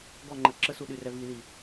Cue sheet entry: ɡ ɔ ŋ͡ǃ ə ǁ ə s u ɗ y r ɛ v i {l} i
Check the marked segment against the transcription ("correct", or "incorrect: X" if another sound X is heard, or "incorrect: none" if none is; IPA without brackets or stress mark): correct